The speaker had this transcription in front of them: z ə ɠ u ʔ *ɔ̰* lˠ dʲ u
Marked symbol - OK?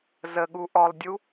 no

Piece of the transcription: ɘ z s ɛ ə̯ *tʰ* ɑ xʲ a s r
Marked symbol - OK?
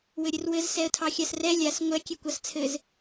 yes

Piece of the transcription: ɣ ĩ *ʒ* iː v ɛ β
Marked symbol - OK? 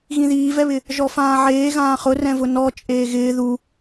no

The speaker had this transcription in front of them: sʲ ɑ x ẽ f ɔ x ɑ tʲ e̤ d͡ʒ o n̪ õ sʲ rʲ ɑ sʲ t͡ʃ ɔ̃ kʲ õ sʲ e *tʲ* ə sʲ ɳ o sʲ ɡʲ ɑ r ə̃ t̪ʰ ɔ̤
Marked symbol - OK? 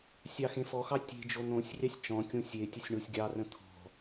yes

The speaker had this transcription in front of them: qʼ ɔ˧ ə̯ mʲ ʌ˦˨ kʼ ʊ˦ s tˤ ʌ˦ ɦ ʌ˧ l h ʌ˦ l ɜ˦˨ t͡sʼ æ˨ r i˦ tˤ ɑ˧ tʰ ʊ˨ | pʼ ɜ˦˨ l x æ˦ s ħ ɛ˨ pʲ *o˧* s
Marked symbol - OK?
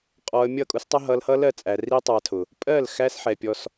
no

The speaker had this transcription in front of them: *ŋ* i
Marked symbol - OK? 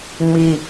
no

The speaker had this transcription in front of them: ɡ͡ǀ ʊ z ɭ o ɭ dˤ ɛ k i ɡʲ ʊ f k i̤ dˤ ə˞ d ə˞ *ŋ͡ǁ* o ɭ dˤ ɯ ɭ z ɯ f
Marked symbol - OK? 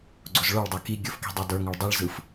no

